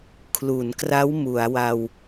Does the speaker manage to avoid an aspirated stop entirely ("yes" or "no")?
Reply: no